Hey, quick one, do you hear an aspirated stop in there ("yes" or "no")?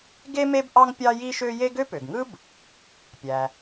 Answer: no